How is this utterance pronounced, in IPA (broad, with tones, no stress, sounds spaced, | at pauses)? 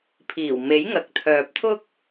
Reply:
pʰ iː˨˩ w m e˨˥ j ŋ ɐ˨ k̚ t̪ʰ œː˨ p̚ t̪ʰ ʊ˥ k̚